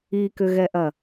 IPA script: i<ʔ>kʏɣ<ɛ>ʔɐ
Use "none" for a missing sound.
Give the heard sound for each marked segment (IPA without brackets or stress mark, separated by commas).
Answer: none, ɛ